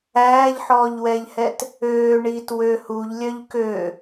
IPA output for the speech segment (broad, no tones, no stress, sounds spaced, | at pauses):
æː ʎ ħ ɔː ʎ w ɛ ʎ h ɛ t | øː ɳ iː t w ø h u ʎ lʲ œ ʎ k ø